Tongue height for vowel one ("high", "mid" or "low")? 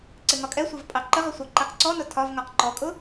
high